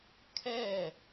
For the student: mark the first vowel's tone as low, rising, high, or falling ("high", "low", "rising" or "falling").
falling